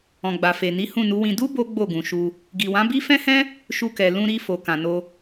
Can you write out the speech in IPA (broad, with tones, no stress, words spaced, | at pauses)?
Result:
ɔ̃˨ɡ͡ba˨fe˨ni˨˦ hũ˦˨nu˨˦wĩ˧ du˦ bo˦ɡ͡bo˦˨ɡũ˨ʃu˧ | ɡi˨wã˨˦bi˦ fɛ̃˦hɛ̃˦ | ʃu˧kɛ˨ lũ˧ɾi˧ fo˨kã˨no˧